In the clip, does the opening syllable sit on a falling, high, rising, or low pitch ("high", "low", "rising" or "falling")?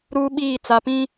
high